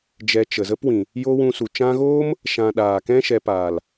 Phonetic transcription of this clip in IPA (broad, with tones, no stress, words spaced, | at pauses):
d͡ʒɛ˧t͡ʃə˨ zə˦pwĩ˨ | jo˧ wũ˧su˨t͡ʃã˦ ɣoː˦m | ʃã˨ ɗaː˨kɛ̃˦ʃɛ˧ paː˨l